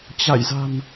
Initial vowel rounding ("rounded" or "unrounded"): unrounded